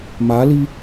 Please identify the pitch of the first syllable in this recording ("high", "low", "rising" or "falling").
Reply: rising